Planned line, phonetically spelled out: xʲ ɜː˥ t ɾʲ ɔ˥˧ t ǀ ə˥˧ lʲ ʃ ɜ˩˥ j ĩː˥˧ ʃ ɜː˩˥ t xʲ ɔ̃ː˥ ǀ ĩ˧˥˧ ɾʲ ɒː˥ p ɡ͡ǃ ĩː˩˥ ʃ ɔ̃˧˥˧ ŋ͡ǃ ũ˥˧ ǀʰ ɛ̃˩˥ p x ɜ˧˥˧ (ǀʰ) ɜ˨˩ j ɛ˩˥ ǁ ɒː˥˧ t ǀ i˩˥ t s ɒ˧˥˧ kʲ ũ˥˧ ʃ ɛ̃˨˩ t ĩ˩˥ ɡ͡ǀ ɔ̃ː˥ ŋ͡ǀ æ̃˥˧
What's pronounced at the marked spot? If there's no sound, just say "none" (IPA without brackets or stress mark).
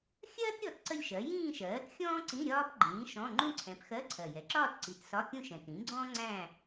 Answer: ǀʰ